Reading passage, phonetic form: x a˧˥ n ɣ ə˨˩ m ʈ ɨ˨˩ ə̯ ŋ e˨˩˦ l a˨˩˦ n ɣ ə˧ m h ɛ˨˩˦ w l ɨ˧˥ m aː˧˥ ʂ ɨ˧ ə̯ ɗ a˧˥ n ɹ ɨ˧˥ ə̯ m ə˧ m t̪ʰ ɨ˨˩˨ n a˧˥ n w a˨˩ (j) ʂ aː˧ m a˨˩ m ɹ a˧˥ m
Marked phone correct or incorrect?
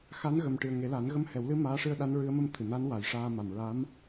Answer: correct